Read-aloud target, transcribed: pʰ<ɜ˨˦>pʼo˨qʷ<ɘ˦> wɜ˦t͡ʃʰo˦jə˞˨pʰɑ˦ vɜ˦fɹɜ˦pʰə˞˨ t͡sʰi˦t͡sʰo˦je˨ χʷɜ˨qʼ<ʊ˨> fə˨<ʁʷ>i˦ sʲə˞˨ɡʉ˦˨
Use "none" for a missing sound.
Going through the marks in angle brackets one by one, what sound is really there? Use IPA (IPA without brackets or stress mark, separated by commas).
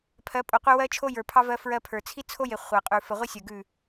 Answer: ɜ˨˦, e˦, ʉ˨, ʁʷ